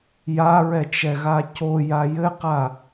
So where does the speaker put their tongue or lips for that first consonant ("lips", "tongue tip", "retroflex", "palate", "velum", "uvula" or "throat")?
palate